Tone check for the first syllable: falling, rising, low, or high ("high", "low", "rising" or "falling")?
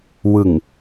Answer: low